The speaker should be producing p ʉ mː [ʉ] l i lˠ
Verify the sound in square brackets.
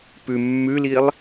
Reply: correct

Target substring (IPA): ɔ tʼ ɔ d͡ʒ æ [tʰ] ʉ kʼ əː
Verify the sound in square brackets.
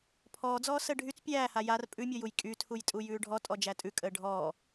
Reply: incorrect: tʼ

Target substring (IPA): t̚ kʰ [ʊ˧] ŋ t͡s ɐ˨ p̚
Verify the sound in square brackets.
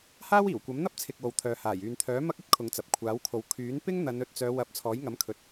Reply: incorrect: ʊ˨˧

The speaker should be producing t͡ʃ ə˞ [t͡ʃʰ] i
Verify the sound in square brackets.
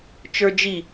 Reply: incorrect: d͡ʒ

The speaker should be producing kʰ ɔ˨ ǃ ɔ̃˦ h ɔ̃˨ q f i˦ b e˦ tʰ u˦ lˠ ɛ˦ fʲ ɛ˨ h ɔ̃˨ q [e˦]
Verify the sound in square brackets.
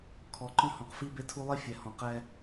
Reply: incorrect: ɛ˦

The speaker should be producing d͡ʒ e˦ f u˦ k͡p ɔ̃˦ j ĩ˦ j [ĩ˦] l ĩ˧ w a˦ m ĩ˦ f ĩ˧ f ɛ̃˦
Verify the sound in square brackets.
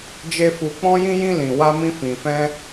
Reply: correct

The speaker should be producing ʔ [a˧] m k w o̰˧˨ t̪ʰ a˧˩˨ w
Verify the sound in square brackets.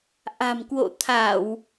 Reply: incorrect: a̤˨˩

